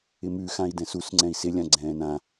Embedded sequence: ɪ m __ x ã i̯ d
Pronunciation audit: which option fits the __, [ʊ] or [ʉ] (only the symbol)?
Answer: ʉ